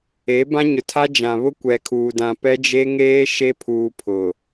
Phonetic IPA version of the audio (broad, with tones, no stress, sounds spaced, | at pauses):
e˨˦ b ã˦ ɲ ʊ˨ tʰ a˦ d͡ʒ ã˨ β ʊ˦ kʷ ɛ˨ kʰ uː˨ d ã˨ p ɛ˦ d͡ʒ e˦ ŋ eː˦ ʃ e˦ pʰ uː˨ pʰ ʊ˨